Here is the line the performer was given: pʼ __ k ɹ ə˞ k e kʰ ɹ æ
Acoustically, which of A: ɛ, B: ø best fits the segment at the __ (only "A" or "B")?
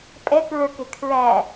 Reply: A